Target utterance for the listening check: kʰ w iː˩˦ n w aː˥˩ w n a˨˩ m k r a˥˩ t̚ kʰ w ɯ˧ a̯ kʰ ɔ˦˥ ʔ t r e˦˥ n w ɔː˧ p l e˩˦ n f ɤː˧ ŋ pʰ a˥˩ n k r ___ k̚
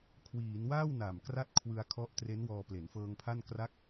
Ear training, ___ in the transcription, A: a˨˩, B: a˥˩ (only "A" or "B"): B